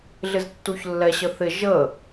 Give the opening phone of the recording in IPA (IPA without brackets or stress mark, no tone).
ɮ